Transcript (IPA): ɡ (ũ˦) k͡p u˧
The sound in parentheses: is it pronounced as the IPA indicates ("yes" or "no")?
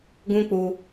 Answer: yes